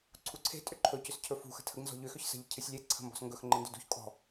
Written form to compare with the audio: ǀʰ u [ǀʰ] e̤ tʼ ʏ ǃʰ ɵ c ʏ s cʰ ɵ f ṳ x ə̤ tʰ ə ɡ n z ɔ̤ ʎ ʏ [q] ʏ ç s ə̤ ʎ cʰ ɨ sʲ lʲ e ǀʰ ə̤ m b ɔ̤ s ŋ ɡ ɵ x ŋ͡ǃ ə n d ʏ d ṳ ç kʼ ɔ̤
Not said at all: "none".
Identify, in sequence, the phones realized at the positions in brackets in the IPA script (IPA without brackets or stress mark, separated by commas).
ǀʰ, x